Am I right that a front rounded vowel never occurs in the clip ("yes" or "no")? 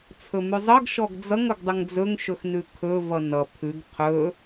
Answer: yes